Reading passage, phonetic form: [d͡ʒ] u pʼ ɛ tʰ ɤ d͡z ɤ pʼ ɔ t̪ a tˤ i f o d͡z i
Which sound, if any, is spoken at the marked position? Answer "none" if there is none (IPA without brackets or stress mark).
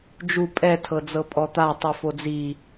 d͡ʒ